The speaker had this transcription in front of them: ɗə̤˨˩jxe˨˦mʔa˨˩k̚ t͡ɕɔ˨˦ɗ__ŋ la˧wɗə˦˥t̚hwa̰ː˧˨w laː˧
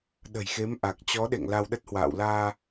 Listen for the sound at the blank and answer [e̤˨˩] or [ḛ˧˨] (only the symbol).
ḛ˧˨